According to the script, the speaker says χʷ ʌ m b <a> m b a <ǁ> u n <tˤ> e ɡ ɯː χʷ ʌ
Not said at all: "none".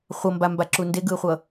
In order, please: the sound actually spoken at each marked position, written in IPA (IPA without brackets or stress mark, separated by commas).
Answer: a, ǁ, d